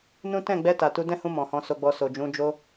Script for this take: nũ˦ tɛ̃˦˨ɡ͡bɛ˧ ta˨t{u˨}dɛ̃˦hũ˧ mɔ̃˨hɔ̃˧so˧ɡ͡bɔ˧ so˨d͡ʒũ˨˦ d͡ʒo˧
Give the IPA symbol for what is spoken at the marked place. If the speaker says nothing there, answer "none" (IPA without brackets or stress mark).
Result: u˧